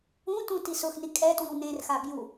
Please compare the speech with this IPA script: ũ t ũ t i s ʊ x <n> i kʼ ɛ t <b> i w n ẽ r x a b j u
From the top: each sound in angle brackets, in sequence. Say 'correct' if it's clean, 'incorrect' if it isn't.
correct, incorrect

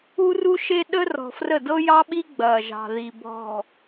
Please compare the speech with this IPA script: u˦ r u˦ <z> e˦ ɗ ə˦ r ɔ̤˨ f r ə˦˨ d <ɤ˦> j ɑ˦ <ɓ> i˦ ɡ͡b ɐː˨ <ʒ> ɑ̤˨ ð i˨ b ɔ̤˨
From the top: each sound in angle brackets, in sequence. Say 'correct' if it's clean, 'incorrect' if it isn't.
incorrect, correct, correct, correct

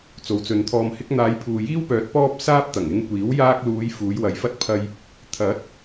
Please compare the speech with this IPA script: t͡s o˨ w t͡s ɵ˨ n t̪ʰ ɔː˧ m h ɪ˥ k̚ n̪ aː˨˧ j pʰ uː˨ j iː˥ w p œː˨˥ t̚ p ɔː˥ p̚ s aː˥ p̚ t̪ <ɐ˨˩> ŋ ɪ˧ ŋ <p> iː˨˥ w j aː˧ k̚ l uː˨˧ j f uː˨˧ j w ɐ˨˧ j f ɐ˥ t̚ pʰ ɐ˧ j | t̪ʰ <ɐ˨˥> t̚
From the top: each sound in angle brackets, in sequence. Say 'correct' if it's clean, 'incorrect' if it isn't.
correct, incorrect, correct

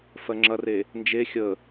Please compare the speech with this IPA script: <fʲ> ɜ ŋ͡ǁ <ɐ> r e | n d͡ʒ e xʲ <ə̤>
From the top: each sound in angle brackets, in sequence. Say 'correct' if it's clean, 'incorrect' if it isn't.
incorrect, correct, incorrect

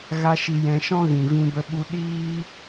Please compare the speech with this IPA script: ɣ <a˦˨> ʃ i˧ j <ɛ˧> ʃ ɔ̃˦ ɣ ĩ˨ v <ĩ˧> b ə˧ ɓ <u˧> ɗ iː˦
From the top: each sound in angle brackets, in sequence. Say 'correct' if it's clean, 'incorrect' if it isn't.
incorrect, incorrect, correct, correct

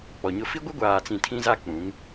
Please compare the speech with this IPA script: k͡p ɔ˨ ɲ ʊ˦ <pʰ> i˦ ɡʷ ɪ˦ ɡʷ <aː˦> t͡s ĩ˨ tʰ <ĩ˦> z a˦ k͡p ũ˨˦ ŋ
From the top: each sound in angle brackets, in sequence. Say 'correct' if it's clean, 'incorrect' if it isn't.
incorrect, incorrect, correct

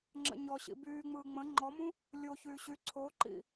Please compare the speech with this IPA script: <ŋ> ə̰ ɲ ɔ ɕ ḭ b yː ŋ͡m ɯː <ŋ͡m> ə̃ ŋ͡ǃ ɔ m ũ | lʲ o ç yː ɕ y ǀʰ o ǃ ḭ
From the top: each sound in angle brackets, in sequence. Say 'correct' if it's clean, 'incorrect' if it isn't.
incorrect, correct

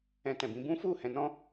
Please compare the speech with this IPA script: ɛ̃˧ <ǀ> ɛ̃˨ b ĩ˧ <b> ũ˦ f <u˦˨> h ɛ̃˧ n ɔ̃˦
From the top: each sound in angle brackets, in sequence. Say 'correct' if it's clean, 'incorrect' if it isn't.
incorrect, correct, correct

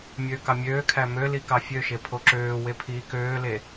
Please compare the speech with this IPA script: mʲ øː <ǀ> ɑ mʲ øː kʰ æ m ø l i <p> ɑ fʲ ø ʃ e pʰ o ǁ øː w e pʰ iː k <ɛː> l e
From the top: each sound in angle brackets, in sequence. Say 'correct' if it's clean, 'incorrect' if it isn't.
incorrect, incorrect, incorrect

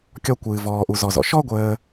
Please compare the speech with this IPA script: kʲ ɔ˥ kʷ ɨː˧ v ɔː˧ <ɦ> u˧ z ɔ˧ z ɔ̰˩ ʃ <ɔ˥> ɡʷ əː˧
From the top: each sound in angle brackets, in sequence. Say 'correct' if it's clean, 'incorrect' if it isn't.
incorrect, correct

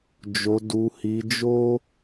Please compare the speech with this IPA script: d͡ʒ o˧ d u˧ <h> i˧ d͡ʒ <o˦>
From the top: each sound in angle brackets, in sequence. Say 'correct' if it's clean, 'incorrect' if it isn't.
correct, correct

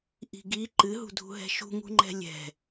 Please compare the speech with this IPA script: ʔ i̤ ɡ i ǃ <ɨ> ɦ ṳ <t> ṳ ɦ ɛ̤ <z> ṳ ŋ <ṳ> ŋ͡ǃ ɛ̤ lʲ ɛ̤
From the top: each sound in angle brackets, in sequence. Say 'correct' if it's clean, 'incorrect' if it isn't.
correct, incorrect, incorrect, correct

